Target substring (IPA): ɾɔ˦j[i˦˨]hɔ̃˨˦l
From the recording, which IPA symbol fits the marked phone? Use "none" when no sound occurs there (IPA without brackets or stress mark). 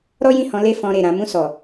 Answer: ĩ˦˨